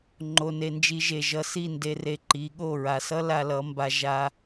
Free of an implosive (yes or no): no